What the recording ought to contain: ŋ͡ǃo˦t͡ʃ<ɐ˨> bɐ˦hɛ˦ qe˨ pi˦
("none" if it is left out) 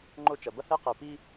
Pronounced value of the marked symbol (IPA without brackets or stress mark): ɐ˨